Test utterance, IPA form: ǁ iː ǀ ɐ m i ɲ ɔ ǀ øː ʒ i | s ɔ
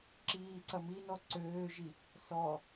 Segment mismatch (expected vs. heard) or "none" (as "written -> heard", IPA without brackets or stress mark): ɲ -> n